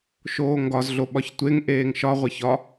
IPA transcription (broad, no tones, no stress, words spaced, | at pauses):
ʃoːŋɡɒz ɮoɓɒçtʷeŋ ʔeːŋʃɒ ʁʷeçɒ